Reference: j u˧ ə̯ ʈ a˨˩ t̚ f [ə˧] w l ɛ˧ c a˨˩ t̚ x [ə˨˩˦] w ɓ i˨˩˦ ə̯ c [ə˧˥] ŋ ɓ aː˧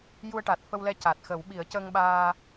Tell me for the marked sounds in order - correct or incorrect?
correct, correct, incorrect

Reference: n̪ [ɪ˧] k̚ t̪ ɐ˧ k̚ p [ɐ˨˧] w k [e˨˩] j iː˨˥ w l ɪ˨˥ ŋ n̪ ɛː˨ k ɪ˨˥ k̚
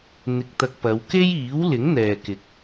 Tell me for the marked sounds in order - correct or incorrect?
correct, correct, incorrect

